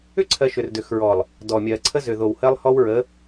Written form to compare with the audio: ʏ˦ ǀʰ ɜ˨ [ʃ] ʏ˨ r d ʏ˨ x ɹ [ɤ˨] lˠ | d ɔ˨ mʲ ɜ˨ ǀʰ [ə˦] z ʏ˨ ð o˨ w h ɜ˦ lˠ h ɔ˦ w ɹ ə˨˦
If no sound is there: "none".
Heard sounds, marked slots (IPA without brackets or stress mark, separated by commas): ʃ, ɔ˨, ə˦